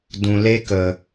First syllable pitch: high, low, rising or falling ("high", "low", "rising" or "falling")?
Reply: low